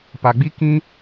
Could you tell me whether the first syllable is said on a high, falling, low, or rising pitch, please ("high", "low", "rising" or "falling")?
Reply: low